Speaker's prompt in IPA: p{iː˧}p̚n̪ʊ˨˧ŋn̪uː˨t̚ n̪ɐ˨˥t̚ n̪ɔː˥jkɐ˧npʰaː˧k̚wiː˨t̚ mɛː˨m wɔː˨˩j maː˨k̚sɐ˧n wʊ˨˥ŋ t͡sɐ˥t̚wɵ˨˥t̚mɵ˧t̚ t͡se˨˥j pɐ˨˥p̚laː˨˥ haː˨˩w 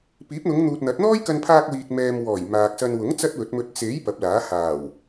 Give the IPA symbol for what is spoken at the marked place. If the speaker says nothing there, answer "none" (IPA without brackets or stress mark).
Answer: iː˨˥